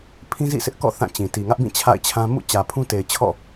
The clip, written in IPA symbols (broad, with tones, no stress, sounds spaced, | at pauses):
pʰ ĩ˦ z ḭ˦˨ sʰ ɪ˦ ʔ k ɔ̰˦˨ θ ã˦˨ t͡ɕ ĩ˨ t i˨ ŋ ä˦ ʔ b ĩ˦˨ t͡ɕʰ a̰˦˨ ɪ̯ t͡ɕʰ ã˦ m ṵ˦˨ t͡ɕ ä˨ pʰ ũ˦ t e˨ ɪ̯ t͡ɕʰ ɔ̰˦˨